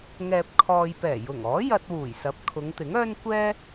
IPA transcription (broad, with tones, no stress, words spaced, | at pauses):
ŋɛː˨p̚ kʰɔː˨jpɛː˨˩jʊ˨˩ŋɔː˨˥ jɐ˧t̚wuː˨˩jsɐ˨˥p̚ kʰʊ˨˧ŋt̪ɪ˨˥ŋœː˥n kʷɛː˥